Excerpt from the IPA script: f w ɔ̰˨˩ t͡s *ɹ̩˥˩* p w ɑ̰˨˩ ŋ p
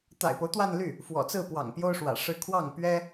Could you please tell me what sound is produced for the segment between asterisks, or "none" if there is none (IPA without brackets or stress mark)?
ɹ̩˥˩